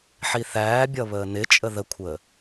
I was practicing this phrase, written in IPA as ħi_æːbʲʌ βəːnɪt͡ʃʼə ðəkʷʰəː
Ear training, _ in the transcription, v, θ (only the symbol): θ